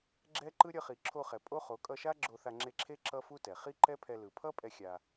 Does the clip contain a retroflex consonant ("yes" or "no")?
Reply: no